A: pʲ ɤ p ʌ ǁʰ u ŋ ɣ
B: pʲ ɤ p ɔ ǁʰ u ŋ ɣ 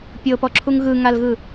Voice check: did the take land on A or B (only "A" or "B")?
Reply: B